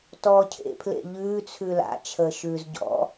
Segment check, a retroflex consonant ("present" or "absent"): absent